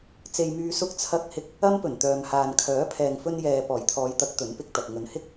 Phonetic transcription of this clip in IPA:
t͡s e˧ j m yː˧ s ʊ˧ k̚ t͡sʰ ɐ˧ k̚ h ɪ˧ k̚ | ɐ˥ m p ɵ˨˩ n t̪ œː˨ m h aː˨ n kʰ œː˨˥ pʰ ɛː˨ ŋ f ɵ˧ n j ɛː˨ p ɔː˨˩ j t̪ʰ ɔː˨˧ j t̪ ɐ˨˥ k̚ t̪ ɵ˨˥ n p ɪ˧ k̚ t̪ ɐ˨ k̚ ŋ ɵ˨ n h ɪ˥ k̚

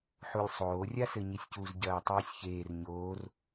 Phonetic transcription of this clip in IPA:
ħ u lʲ sˤ oː rʲ a s ɘ ɲ i sʲ c u z ɟ ɐː tˤ iː sʲ ç eː r ɲ oː r

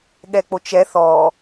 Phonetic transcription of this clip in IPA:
ɠ ɛ k͡p o t͡ʃ ɛ θ ɔ

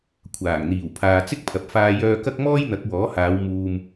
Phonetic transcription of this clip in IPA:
kʷʰ aː˨˩ ŋ n̪ iː˨˩ w pʰ aː˨ t͡s ɪ˥ k̚ pʰ ɐ˨ p̚ f aː˧ j œː˧ k ɐ˥ k̚ m ɔː˥ j n̪ ɐ˨˥ k̚ w ɔː˨˥ h aː˨˧ w m uː˧ m

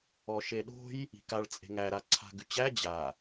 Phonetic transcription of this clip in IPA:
ɔ ʃ e ɗ o̤ j | i̤ k a ɭ t͡sʼ e̤ ŋ æ ɾ a ǀʰ a̤ ɡ ʉ t͡ɕ æ d͡ʑ a

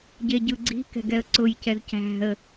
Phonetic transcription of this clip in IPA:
ɟ e ɟ ɯ ɡ͡ǀ i̤ k ɛ̤ ɡ ɛ ə̯ ǀ ʊ j c ɛ z c æ̤ ə̯

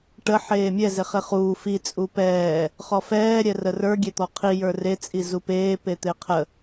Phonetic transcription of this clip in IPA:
ʈ ə ħ eː mʲ ɛ z e χ e χ uː f i t͡sʼ u p ɛː | χ ɔ f ɛː ɾʲ ɛ r ə r ə˞ ɡʲ e t̪ ɔ qʰ i j ə˞ r e t͡sʼ i z u p eː p e t̪ e qʰ ə

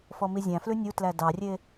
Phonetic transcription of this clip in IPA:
f ɔ m i zʲ æ̃ f l ʉ nʲ u t l æ d ɑ rʲ e

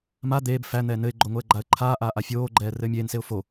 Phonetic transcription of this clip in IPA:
m a d̪ eː b f æ n̪ ɛː n ɘ ɪ̯ ɡ͡ǃ o ŋ o ə̯ ɡ͡ǃ a ə̯ ǃʰ aː ʔ aː ʔ a fʲ oː ɡ͡ǃ ɛː r ɘː mʲ eː n s e ʊ̯ f o

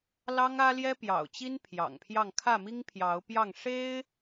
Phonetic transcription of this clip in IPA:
l ɑ˦ ŋ ä˦ l j ɛ˦ p j ɑ̰˨˩ ʊ̯ t͡ɕ i˦ n pʰ j ɑ̰˨˩ ŋ pʰ j ɑ˥˨ ŋ kʰ ä˥˨ m i˦ ŋ pʰ j ɑ˨˦ ʊ̯ p j ɑ˥˨ ŋ ʂ e˦ ɪ̯

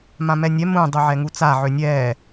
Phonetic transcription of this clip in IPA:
m ã m ɛ nʲ ɛ m ũ dˤ u ʕ ɛ ŋ u t͡s a ʕ ø nʲ ɛː

